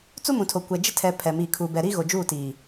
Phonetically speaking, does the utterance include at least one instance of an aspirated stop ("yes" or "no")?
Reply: yes